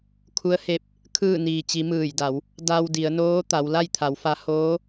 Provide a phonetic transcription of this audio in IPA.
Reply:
kʰu˧˥ə̯he˧˥p̚ | kʰɯː˥˨ niː˩t͡ɕi˩˧ mɯː˧˩jda˩˧w | da˧wdi˩˧ə̯noː˧˥ t̪a˩˧wla˥˨jt̪ʰa˩˧wfa˧˥ hoː˧˥

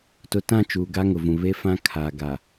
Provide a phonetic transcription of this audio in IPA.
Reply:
tʊ˨tã˦˨ t͡ʃuː˨ɡa˦ ŋʊ˨vũ˨ βe˦fã˦ kʰaː˨ ɡa˨

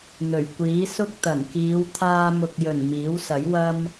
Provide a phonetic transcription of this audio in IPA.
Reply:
n̪ɵ˨˩ɥkʷiː˨˥ sʊ˥k̚t̪ɐ˨˩n kiː˨˧w t̪ʰaː˧mʊ˨k̚jɵ˨˩n miː˨˥wsɐ˨˥j wɐ˥m

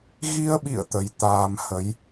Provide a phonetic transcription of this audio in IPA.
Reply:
ɣi˧ə̯ɓḭ˧˨ə̯ t̪ə˨˦j t̪aː˧mhə˨˦j

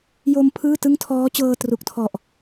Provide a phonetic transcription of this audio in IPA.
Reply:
jo˧m pʰɯː˥˩tɯ˥˩ŋ tʰɔː˦˥t͡ɕɤː˧tru˨˩k̚tʰɔ˨˩ʔ

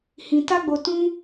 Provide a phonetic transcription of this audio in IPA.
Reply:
hĩ˧ta˦ɡ͡bo˧ tũ˦

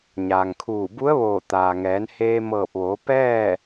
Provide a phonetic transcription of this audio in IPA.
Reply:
ɲaː˩ŋkʰuː˧˩bu˧˥ə̯ʋoː˧˩ t̪aː˩ŋɛː˩˧nheː˧ mɤː˧˩p̚ʋoː˩˧ pɛː˥˨

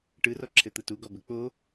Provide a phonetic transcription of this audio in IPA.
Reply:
ʈɯrɔǁʰɘt̪ɯ tuɡɔbɘ k͡po

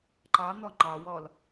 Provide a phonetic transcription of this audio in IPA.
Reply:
ǃɑn̪ɔ ŋ͡ǃɑwɔl

